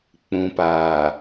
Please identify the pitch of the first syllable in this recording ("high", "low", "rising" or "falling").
low